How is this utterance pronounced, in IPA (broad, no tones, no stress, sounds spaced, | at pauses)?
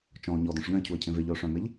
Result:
t͡ʃ ɔ̃ ʊ̯ ɲ ɔ d ɔ̃ ʂ ʎ œ̃ ɪ̯ cʰ u ə̯ cʰ ẽ v e ʎ œ ʊ̯ ʂ œ̃ m e ʎ